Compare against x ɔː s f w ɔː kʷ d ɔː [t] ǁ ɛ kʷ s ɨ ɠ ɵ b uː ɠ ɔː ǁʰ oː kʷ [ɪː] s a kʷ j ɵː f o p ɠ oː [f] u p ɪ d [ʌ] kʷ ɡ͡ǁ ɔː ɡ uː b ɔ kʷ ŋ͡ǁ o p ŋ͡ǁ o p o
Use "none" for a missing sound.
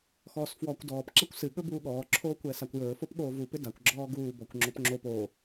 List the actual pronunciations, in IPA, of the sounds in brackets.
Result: p, ɛː, v, a

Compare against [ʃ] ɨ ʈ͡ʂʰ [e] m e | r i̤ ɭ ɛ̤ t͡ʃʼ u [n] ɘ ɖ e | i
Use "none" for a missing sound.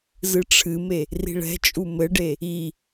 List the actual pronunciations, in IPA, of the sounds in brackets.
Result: z, ɨ, m

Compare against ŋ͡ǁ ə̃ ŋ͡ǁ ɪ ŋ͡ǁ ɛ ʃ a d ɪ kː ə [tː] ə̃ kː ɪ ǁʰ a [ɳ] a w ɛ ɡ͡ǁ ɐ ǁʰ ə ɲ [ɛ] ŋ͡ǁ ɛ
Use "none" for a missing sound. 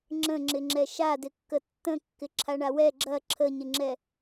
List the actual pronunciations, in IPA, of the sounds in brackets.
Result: tː, ɳ, ɪ

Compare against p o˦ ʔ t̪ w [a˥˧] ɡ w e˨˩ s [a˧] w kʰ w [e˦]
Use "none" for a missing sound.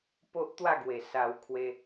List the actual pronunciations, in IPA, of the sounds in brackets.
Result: a˥˧, a˧, e˧

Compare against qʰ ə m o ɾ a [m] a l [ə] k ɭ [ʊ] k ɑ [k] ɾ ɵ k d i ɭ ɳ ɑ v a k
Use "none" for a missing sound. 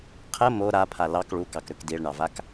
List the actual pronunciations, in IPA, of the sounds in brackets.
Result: pʰ, ɑ, u, k

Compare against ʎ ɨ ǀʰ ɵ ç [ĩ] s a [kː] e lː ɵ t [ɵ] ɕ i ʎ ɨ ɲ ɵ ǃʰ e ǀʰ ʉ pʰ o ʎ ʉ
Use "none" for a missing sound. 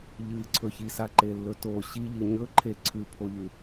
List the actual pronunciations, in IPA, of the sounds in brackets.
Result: i, ǃ, o

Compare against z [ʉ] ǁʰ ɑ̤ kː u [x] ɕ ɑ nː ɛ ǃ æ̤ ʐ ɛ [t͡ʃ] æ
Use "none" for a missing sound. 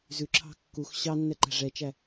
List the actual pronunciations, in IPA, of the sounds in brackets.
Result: ʉ, x, t͡ʃ

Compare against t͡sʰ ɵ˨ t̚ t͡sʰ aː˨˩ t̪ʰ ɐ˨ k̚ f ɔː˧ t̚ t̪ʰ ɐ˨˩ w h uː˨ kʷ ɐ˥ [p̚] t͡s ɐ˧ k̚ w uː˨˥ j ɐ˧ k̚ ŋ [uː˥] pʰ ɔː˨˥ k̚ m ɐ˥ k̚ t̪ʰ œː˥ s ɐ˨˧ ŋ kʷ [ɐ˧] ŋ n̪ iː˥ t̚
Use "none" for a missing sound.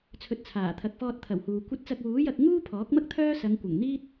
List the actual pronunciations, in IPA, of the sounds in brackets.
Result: t̚, uː˥, ɐ˨˩

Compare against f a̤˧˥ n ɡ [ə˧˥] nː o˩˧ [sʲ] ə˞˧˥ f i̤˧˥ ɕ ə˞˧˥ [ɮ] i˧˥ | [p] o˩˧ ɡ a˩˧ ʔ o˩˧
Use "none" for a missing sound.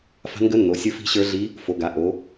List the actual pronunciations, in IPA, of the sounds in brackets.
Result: ə˧˥, sʲ, ɮ, f

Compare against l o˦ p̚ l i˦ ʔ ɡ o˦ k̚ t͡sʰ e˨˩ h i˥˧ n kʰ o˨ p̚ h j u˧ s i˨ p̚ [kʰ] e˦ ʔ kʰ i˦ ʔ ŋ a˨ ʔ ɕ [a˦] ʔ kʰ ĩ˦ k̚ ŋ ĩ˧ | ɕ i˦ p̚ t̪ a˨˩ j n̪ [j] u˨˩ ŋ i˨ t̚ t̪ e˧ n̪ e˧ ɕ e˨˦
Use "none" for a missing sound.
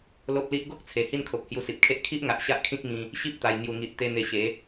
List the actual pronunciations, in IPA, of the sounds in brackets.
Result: kʰ, a˦, j

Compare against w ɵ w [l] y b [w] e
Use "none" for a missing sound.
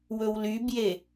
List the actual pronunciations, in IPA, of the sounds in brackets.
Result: l, j

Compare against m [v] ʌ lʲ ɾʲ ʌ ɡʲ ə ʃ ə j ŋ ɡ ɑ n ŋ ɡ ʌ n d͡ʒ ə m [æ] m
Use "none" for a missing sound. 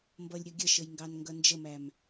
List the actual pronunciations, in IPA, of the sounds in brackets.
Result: b, æ

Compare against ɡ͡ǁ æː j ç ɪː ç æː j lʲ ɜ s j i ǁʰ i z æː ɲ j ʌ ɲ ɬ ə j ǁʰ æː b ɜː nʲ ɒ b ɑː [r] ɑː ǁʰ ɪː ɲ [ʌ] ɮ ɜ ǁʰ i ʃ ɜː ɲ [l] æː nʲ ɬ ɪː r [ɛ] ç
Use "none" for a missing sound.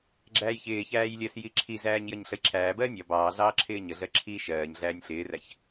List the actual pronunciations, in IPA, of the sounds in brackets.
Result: ɮ, ə, ɮ, æ

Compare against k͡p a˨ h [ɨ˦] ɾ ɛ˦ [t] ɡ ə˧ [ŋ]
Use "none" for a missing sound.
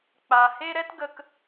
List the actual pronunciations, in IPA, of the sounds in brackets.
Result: e˦, t, k

